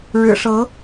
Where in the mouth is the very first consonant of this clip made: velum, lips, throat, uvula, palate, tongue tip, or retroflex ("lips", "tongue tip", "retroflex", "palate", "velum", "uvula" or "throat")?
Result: retroflex